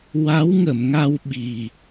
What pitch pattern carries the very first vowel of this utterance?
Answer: rising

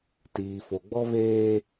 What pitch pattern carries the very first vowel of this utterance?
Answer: low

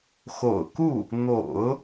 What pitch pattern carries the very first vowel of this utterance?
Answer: low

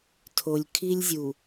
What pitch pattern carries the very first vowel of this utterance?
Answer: low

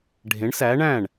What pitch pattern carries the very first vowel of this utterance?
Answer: rising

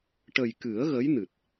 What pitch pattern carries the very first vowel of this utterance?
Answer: low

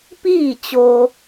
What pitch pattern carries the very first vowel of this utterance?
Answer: falling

